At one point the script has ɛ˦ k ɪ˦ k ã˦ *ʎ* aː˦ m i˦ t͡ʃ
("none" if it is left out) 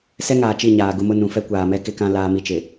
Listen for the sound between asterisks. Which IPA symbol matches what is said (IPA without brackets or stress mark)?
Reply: l